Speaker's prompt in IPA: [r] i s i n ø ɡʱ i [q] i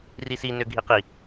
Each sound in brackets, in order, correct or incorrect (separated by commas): correct, correct